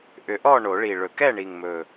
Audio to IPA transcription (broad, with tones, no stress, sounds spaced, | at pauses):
ʔ ʏ˨˩˦ ʔ ɔ˥˨ ɳ o˨˩˦ ɭ i˨˩ ɭ ɵ˨˩˦ k ɛ˥˨ ɳ i˨˩ ŋ m ɵ˨˩